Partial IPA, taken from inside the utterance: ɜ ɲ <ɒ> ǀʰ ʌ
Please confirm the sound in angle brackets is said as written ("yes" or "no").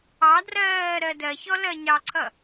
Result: no